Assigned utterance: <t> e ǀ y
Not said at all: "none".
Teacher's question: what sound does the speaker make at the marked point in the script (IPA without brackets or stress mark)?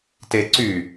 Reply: t